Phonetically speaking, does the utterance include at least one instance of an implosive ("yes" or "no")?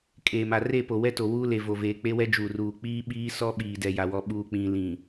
yes